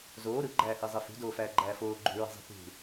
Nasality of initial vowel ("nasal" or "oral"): oral